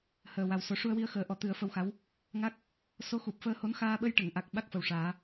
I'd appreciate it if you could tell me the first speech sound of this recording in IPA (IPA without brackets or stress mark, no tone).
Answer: h